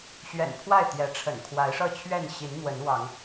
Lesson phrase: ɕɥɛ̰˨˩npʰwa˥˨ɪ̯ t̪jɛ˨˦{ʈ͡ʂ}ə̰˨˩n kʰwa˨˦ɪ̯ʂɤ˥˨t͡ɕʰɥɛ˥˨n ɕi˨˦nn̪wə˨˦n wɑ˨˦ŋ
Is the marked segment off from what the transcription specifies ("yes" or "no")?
yes